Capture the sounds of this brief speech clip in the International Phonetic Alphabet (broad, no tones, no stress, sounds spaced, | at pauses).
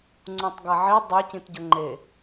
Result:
ŋ͡ǀ ũ tˤ ɡ a ʕ i dˤ ɛ c ĩ t ɟ ʊ ŋ͡ǃ e